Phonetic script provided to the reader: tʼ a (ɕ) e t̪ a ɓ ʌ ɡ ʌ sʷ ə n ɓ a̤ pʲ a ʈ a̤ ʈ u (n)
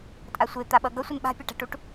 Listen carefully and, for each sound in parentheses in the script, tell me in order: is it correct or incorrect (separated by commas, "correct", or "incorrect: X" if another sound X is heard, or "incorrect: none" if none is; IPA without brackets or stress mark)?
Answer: incorrect: sʷ, incorrect: ʈ